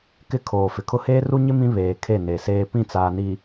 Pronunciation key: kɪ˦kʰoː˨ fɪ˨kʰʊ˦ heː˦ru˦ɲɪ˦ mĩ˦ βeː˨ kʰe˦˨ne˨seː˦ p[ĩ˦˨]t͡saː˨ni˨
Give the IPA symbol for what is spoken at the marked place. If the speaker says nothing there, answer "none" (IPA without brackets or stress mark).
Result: ĩ˦˨